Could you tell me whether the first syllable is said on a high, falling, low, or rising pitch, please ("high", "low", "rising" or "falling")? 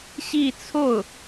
falling